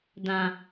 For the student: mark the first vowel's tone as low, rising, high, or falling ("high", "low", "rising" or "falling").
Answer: low